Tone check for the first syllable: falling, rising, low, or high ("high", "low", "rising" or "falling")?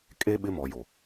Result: high